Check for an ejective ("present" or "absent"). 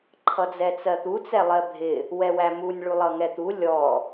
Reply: absent